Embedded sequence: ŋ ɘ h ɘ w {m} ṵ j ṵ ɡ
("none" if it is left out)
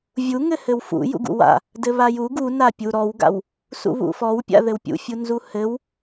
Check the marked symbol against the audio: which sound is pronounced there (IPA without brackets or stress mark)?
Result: f